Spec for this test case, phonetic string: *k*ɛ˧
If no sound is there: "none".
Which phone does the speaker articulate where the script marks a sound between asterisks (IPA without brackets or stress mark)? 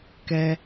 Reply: k